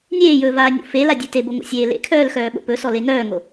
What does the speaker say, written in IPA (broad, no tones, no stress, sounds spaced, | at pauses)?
nʲ eː j ɵː v aː nʲ o̰ f e l a dʲ ʉ t e b o ŋ o̰ sʲ eː l ḛ kʰ œː l x œː ɓ o̰ p ɵ s ɔ l e ŋ œː ŋ o